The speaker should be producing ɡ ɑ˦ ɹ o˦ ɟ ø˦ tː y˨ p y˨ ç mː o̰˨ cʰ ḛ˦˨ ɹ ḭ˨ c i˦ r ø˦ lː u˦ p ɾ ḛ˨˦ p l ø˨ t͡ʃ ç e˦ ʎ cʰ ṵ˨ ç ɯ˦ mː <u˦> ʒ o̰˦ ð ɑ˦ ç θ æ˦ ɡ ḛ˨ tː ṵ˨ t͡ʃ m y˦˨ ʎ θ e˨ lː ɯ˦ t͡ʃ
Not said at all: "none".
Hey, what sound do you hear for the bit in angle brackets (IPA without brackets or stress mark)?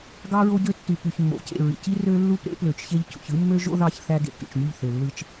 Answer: ø˦